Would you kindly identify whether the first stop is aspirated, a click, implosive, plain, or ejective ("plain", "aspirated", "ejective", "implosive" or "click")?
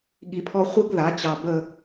implosive